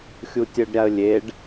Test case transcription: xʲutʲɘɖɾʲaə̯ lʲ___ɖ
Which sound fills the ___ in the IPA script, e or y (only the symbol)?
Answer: e